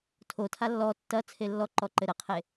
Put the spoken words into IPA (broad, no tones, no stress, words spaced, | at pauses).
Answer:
tʰotʰa lːɔ tːɐ t͡sʰelːɔǃɔ ǃɘɾɘqʰe